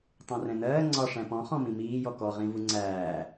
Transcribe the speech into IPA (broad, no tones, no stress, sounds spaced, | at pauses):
tˤ ɛ̃ r ɛ̃ n ɜː ŋ͡ǀ ɒ ʂ æ̃ p ɔ̃ χ ɔ̃ m ĩ m iː j ɔ k ɔ ʁ ĩ v u ŋ͡ǀ æː